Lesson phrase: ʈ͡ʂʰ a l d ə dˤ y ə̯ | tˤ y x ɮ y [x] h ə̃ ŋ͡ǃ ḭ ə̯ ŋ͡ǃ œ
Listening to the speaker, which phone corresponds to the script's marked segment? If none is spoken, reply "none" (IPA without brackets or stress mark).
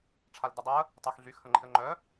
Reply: x